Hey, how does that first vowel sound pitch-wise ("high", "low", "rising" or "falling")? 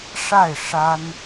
falling